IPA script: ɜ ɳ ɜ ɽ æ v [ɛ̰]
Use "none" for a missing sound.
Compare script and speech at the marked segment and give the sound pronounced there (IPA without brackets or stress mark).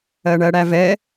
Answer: ɛ